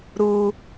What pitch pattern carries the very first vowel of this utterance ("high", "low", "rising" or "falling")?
high